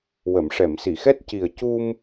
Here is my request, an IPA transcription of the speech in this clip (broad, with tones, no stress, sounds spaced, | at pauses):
w ə˨˩˨ m ʂ ɛ˨˩˨ m s i˨˩˨ x ɛ˦˥ t̚ c i˨˩ ə̯ c u˧ m